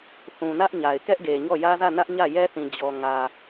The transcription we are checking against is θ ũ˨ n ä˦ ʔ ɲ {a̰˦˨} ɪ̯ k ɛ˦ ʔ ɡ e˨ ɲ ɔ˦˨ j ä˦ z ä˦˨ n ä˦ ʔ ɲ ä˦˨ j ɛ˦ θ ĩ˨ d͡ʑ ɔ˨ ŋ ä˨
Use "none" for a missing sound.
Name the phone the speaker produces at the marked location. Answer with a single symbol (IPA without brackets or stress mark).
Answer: a˨